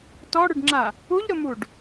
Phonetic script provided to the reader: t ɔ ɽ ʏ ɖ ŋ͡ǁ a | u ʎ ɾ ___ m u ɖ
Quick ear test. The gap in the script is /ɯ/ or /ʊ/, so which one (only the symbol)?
ʊ